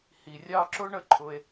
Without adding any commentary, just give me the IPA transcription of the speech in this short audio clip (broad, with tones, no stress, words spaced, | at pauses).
hi˩rʲɑ˦ǁʊ˥ ɳə˦ǃʰʊ˨e̯